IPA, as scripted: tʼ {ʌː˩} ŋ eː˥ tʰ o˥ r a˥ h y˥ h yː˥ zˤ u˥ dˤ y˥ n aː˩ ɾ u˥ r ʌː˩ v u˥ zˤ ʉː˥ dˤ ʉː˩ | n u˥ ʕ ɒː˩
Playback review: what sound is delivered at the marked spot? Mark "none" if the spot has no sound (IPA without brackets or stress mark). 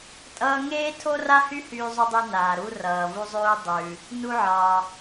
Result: ʌː˥